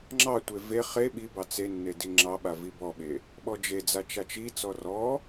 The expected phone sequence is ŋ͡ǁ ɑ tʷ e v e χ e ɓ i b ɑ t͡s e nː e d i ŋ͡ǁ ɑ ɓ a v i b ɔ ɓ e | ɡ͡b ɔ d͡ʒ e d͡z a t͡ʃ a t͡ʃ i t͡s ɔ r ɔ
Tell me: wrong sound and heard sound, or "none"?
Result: ɡ͡b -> ɓ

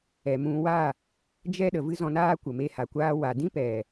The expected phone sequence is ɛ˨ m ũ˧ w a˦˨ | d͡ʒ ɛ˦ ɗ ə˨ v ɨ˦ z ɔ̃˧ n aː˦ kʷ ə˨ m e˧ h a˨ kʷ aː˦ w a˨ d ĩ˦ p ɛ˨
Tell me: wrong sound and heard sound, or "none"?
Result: none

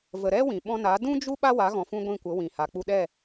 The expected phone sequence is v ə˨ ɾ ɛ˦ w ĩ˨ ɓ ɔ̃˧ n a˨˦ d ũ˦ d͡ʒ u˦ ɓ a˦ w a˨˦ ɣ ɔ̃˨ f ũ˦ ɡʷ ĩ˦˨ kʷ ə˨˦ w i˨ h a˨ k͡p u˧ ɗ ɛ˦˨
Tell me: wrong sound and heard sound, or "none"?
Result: i˨ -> ĩ˨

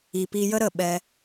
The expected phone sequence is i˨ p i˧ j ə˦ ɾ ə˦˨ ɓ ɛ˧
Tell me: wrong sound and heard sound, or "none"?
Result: none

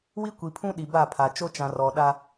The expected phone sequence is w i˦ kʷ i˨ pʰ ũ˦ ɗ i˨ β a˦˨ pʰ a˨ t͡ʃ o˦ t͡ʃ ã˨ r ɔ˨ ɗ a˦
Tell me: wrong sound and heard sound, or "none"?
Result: β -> b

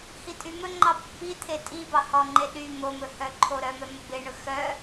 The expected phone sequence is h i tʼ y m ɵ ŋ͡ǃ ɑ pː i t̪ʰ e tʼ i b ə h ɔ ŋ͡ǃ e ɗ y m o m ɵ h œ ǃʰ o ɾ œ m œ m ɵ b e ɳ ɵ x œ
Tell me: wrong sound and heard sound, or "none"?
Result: ə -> ɑ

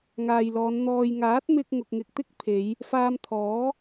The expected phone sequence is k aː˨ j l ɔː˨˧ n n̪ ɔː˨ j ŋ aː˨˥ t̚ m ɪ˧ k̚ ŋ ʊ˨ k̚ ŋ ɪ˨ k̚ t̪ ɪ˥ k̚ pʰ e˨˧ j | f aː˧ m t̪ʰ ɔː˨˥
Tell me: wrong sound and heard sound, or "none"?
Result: k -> ŋ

